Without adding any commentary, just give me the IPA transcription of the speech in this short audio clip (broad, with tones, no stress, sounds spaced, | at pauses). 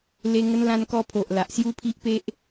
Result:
l e˧ ŋ ə˧ n l ã˧ n k ɔ˧ pʰ o˨ ʔ l a˨ ʔ s j u˦ pʰ i˦ ʔ p e˦ ʔ